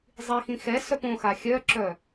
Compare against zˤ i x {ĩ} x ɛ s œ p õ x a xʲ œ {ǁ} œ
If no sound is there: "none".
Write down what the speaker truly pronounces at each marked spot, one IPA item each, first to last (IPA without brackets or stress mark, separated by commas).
ĩ, ǁ